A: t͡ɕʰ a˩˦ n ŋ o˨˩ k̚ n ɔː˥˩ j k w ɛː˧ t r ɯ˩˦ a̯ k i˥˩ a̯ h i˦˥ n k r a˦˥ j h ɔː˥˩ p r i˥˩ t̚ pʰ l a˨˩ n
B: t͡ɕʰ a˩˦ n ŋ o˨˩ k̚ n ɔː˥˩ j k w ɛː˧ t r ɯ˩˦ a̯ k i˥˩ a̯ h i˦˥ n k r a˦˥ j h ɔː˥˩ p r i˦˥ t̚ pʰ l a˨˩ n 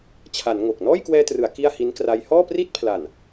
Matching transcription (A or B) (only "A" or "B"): A